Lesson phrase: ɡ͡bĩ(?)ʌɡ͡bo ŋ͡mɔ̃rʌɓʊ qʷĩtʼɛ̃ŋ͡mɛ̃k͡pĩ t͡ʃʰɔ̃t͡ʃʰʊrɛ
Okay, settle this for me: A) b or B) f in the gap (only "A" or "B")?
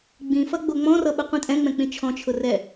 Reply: B